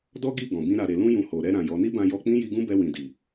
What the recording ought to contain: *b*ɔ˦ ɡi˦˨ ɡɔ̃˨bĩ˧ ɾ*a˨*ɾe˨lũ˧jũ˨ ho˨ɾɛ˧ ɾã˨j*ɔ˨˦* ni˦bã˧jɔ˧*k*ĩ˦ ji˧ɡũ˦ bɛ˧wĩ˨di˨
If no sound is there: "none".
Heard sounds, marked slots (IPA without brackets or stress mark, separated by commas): d, a˨, ɔ˨˦, k͡p